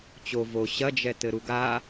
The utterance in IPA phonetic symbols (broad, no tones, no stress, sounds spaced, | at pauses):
t͡ɕ o v o ɕ ɐ d͡ʒ ɛ t ɘ ɾ u ɡ a